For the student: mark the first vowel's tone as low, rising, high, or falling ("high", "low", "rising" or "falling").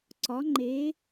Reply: rising